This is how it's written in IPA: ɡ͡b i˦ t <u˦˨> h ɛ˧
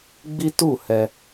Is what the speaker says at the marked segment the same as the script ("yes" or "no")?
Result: yes